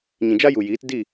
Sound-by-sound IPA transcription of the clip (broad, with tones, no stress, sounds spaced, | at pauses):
ɲ ĩ˨ d͡ʒ a˦ j u˨ j iː˨˦ t d i˦˨